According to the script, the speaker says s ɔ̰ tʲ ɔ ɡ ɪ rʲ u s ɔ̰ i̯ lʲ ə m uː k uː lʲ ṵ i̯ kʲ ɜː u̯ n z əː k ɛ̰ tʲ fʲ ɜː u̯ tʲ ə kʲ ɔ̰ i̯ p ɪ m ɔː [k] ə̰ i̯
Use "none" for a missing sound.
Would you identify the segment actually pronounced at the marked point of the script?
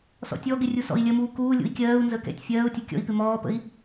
p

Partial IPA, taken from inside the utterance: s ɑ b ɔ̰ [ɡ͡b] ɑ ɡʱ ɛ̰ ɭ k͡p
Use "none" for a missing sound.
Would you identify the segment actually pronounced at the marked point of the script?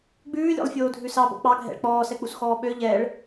k͡p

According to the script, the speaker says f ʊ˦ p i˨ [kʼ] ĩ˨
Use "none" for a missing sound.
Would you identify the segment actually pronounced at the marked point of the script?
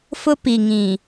ŋ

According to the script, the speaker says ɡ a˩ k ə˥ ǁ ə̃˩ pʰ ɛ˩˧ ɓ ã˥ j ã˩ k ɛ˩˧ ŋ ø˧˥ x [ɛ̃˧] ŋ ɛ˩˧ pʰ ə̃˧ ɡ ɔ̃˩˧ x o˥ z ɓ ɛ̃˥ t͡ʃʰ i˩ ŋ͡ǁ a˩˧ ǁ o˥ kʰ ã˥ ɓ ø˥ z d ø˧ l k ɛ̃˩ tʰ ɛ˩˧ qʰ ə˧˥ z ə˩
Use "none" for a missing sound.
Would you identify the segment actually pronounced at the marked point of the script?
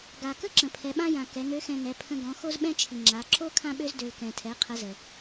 ɛ̃˧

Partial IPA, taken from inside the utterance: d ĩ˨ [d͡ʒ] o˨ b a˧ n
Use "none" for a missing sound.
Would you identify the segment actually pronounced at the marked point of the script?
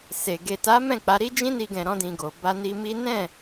ɡ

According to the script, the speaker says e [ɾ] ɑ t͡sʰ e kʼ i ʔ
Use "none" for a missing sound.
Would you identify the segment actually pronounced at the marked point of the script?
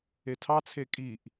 tʰ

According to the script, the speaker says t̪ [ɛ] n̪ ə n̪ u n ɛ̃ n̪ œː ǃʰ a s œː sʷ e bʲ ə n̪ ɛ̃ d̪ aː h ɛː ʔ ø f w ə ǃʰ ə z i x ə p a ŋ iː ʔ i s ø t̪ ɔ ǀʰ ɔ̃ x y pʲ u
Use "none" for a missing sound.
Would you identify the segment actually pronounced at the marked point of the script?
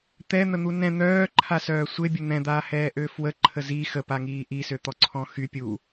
ɛ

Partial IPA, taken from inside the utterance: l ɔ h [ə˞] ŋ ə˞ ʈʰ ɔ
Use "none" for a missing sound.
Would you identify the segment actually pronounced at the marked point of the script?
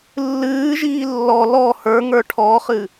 ə˞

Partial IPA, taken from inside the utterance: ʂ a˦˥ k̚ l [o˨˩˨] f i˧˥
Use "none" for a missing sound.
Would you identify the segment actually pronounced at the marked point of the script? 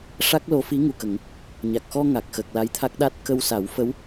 o˧˥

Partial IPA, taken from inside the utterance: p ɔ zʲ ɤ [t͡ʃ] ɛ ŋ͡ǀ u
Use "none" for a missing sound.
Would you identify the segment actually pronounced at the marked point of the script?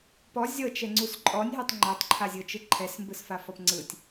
t͡ʃ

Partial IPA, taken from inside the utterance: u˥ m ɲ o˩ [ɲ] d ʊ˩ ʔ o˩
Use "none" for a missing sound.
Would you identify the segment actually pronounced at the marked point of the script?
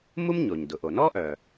ɲ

